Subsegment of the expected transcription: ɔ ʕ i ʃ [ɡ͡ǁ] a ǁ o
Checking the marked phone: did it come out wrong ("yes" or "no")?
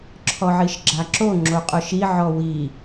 no